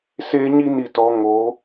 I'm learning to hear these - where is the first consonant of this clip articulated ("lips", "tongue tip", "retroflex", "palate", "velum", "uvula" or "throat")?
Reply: tongue tip